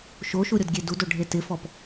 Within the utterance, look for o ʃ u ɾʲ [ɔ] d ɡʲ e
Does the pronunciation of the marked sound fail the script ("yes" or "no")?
no